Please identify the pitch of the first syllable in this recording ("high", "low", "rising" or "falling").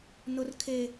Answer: high